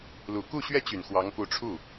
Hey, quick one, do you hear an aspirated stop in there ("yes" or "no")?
yes